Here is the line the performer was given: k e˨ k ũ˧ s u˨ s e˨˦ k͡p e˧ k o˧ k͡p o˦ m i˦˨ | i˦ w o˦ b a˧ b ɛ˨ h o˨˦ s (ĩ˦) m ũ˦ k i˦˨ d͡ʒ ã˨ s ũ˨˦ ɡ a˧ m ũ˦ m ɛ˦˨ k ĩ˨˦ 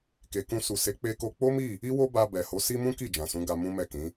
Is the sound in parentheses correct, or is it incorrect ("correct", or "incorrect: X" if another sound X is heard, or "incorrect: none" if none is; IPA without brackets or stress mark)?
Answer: incorrect: i˦